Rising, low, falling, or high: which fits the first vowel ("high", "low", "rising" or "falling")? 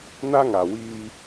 high